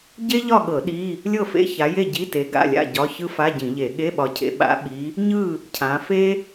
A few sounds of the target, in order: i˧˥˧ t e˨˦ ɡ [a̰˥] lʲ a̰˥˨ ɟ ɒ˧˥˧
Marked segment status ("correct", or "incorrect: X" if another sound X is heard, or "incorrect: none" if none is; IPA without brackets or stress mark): incorrect: a̰˧˥˧